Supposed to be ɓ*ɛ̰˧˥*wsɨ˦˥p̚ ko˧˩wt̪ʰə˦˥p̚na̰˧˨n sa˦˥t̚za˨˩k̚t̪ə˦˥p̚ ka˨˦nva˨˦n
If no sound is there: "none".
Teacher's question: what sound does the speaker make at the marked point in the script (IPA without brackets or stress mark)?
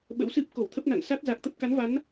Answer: ə̰˧˥